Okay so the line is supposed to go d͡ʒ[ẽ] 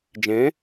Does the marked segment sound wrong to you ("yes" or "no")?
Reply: no